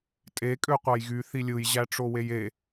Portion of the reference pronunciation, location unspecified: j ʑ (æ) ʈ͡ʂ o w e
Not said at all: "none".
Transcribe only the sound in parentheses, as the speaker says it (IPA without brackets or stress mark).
æ